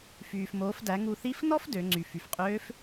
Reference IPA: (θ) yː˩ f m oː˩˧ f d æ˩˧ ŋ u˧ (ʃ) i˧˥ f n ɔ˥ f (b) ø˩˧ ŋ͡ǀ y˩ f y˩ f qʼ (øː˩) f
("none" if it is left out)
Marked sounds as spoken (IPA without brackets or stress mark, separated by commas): f, θ, d, øː˧˥